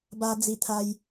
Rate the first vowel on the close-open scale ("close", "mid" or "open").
open